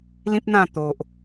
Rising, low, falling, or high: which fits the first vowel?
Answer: high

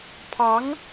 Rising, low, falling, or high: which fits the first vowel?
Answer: rising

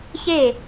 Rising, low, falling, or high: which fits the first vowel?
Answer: falling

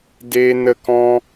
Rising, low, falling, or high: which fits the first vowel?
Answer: high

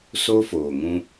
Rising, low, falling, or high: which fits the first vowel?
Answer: high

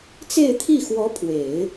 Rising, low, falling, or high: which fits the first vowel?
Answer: falling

